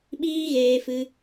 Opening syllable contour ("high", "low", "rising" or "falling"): high